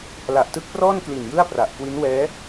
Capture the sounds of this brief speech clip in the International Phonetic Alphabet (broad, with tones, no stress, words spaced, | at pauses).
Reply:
la˨˩ʔtɯ˦˥k̚prɔː˥˩nkli˨˩n jɯ˥˩a̯pra˨˩ʔ kwi˦˥nwɛː˦˥